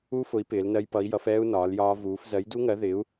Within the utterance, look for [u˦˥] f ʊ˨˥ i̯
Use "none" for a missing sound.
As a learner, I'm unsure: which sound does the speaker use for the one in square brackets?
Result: u˦˥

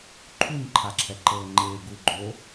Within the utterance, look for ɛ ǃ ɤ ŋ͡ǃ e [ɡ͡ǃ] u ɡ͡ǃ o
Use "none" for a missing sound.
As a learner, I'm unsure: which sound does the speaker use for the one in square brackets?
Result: ɡ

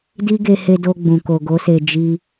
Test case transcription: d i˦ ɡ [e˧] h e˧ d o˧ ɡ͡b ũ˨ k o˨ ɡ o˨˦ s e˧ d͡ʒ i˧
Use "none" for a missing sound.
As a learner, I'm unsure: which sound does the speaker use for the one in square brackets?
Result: e˧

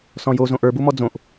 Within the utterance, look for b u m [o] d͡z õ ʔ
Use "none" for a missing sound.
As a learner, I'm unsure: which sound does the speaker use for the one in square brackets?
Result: ɔ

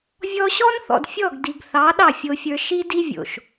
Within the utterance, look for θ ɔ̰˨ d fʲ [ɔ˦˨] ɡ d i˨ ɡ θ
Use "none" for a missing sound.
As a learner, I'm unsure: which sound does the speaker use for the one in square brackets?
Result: ɔ˦˨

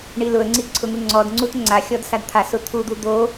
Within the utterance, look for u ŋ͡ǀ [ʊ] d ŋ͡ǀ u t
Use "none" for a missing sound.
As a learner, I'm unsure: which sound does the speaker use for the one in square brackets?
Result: ɔ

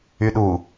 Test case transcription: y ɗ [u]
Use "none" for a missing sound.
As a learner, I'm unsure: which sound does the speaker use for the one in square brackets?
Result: u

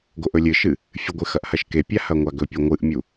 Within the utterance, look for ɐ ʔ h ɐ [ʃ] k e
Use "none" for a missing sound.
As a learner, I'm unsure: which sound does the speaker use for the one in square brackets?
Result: ʃ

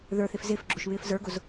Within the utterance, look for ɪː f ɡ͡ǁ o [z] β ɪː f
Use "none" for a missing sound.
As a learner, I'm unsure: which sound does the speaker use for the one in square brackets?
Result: ʃ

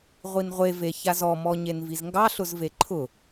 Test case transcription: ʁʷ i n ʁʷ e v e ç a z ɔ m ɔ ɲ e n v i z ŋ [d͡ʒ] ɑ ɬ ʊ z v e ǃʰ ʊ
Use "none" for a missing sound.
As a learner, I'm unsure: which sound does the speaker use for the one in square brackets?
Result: ɡ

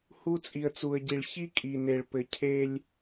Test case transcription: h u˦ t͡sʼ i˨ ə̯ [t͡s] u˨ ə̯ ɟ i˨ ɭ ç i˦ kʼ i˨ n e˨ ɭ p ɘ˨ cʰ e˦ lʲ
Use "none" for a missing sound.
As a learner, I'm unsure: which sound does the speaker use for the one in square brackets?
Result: t͡s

